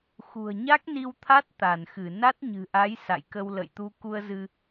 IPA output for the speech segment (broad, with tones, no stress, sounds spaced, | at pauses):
x ṳ˨˩ ə̯ ɲ a˦˥ k̚ n i˧ w t̪ʰ a˦˥ t̚ t̪ a˧˩ n x ɨ˧˩ n a˦˥ t̚ ɲ ɨ̤˨˩ ʔ a˨˦ j s a̰˧˨ j k ə˧ w l ə̰˧˨ j t̪ u˧ k u˧ ə̯ z ɨ˧